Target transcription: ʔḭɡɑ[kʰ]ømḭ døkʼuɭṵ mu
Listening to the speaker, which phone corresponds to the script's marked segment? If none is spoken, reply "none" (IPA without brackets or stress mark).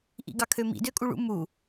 kʰ